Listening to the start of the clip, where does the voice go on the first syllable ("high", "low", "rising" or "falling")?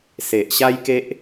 low